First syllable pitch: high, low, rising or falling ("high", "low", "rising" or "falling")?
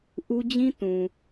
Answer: high